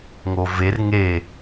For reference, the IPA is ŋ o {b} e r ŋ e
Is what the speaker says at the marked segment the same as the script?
no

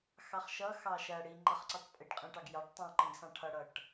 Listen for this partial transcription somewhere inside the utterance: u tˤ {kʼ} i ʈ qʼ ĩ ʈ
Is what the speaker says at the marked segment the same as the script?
no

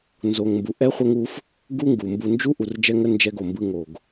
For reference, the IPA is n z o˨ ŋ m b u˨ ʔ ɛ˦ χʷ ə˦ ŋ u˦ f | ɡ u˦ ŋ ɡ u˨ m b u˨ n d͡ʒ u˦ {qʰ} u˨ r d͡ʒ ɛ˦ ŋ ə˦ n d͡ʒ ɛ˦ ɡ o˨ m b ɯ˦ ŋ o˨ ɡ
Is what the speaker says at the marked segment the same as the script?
no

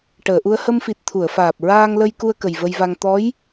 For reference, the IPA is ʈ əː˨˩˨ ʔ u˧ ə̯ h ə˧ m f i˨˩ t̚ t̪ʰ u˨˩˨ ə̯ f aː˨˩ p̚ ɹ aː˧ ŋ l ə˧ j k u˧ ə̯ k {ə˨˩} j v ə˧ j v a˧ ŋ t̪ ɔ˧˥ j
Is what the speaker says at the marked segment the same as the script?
yes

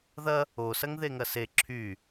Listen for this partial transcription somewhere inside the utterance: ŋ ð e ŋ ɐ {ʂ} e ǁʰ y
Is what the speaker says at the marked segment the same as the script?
no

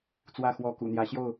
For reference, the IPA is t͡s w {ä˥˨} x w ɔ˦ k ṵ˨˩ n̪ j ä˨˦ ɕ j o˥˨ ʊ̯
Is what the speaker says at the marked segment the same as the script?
yes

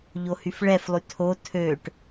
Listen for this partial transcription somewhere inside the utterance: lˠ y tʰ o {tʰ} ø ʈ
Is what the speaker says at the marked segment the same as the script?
yes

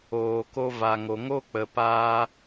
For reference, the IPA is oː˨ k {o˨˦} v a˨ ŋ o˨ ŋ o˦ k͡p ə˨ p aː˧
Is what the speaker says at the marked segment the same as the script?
no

